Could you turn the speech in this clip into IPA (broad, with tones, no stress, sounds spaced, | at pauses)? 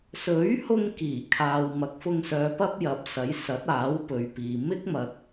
s ɵ˨˥ ɥ h ʊ˧ ŋ k iː˨˩ kʰ aː˨ w m ɐ˨˥ k̚ f ʊ˧ ŋ s œː˨˧ p ɐ˥ p̚ j ɐ˨˥ p̚ s ɐ˨˥ j s ɐ˨˥ t̚ aː˨˥ w p ɵ˨ ɥ p iː˨ m ɪ˥ k̚ m ɐ˨ k̚